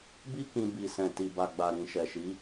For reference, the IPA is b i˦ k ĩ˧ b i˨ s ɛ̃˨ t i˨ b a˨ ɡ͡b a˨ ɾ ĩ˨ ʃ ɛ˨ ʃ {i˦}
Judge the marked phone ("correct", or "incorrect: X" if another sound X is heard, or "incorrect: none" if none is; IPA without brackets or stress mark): incorrect: i˨˦